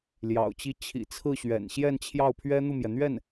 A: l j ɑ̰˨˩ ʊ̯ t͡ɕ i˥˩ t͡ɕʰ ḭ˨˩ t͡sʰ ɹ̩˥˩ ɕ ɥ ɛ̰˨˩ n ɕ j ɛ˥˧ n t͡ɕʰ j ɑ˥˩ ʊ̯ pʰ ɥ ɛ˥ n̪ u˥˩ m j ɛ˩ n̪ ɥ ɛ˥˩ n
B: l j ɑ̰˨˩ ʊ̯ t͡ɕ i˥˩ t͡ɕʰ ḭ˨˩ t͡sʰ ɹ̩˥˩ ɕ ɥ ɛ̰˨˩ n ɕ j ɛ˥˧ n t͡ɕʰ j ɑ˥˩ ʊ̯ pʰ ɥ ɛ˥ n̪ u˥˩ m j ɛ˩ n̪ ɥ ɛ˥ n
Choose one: A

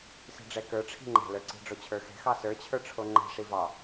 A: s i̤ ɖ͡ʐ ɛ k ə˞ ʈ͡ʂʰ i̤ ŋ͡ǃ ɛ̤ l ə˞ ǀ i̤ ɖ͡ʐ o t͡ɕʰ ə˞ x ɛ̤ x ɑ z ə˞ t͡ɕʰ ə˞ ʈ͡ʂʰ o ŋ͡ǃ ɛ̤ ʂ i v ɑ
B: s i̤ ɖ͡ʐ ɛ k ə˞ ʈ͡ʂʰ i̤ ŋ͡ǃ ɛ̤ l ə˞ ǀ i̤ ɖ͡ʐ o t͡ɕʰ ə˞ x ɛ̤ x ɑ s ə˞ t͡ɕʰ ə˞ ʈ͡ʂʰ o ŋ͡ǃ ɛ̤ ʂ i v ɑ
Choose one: B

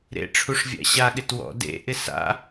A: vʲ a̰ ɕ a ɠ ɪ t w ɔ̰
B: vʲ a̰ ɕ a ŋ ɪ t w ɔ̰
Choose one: A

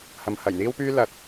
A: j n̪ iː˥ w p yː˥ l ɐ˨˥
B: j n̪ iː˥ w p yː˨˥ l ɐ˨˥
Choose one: A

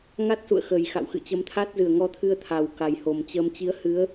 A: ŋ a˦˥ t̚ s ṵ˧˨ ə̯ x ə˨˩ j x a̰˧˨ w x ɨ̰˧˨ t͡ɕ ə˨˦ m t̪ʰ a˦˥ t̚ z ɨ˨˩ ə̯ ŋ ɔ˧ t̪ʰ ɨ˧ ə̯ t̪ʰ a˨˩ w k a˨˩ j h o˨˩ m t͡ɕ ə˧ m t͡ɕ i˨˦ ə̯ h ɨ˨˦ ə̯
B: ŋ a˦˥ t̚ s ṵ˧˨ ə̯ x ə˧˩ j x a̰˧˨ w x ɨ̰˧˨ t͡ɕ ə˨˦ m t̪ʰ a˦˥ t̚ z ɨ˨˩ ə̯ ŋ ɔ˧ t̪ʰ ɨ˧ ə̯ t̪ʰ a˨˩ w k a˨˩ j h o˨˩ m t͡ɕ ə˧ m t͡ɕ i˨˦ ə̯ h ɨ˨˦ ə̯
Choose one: A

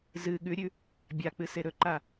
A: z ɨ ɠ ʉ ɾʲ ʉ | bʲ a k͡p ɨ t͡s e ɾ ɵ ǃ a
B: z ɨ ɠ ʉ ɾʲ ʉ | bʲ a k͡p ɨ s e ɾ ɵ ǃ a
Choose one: B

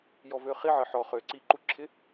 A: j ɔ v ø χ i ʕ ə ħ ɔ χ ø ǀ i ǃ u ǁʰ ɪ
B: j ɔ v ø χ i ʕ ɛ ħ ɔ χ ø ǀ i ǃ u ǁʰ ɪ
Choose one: A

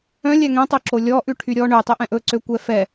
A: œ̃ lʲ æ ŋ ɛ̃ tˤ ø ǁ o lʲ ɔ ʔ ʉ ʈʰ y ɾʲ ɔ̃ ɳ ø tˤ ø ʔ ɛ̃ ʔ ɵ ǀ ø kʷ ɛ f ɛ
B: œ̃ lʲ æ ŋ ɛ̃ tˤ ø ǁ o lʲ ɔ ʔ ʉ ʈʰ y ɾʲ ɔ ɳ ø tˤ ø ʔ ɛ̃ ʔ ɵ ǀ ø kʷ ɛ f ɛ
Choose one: B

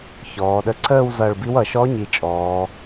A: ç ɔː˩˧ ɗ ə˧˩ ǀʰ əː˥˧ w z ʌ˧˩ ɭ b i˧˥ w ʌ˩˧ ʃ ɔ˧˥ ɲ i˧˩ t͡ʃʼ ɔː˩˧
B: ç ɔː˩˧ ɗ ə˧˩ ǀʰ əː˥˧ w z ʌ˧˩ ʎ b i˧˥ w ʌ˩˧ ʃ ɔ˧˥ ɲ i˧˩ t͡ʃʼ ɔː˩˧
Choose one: A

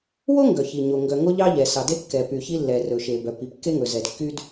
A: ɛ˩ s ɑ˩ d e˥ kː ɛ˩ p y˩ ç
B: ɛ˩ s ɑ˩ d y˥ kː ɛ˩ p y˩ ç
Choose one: A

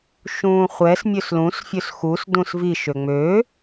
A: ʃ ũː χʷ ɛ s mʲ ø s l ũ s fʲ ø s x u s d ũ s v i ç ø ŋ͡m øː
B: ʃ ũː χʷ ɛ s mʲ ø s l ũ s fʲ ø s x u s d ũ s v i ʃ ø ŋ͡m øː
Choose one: B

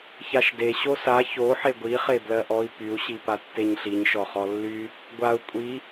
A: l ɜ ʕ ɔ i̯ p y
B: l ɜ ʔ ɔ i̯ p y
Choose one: B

